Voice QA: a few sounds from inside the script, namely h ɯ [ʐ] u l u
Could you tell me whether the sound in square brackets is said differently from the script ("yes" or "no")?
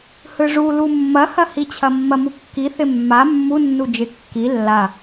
no